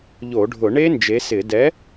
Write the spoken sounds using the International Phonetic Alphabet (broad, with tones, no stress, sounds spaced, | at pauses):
ʎ o˧˩˧ ɖʱ ʊ˧˩˧ ɳ e˦˥ n d͡ʒ e˨˥ s ɪ˧˩˧ d ɛ˨˥